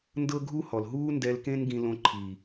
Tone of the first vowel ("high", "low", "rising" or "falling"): high